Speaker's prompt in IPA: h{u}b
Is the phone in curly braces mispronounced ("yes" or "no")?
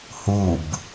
no